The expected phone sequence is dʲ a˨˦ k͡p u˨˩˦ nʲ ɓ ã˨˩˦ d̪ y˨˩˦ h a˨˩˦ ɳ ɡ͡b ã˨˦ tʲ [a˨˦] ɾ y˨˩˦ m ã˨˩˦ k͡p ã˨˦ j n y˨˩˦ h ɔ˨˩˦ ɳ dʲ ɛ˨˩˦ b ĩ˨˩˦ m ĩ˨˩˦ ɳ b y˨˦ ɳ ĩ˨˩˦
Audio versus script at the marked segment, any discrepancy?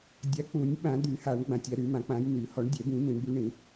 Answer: no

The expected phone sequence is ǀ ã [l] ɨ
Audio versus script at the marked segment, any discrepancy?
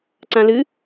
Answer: no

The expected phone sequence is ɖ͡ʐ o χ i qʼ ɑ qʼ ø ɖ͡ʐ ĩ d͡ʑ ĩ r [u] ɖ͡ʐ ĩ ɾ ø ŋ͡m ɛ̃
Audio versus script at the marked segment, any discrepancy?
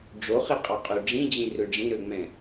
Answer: yes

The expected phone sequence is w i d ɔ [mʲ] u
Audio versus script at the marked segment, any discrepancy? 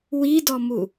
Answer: yes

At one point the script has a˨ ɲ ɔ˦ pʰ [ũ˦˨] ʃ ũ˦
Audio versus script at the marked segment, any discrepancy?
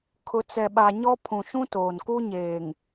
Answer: yes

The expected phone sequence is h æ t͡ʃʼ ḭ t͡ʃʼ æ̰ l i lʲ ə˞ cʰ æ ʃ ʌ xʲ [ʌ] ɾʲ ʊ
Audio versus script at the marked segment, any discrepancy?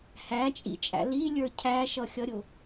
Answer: no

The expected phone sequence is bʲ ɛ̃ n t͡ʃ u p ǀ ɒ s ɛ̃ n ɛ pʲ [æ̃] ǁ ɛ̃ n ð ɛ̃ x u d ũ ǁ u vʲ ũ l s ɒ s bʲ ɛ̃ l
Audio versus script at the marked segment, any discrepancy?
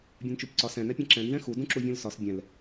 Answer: yes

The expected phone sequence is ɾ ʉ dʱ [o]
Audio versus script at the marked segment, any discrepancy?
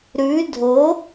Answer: no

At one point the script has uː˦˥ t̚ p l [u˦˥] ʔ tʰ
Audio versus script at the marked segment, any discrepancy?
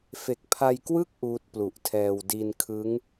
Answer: yes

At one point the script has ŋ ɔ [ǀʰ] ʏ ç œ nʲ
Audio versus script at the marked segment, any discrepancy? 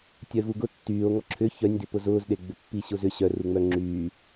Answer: yes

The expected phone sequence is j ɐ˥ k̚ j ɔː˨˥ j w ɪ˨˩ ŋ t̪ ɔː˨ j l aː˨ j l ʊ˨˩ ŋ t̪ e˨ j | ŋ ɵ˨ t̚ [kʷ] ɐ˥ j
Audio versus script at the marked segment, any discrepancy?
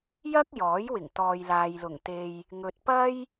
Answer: yes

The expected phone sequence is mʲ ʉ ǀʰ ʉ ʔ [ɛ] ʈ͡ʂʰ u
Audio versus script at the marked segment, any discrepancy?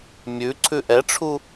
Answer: no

